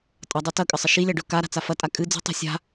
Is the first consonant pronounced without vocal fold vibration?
yes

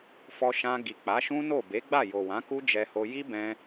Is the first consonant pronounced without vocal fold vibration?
yes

